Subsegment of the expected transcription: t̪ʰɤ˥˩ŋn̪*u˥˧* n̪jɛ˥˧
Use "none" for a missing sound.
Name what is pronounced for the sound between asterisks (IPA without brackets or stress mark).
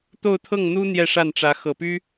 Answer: u˥